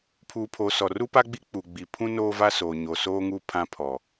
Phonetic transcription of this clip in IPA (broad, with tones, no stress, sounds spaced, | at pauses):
pʰ uː˨ pʰ o˨ s ɔ˨ r u˦ p a˦ ɡ͡b i˦ k͡p u˨ ɡ͡b i˨ pʰ ũ˦ n oː˦ v a˦ s oː˨ ɲ o˨ s oː˦ ŋ uː˦ pʰ ã˦ pʰ ɔ˨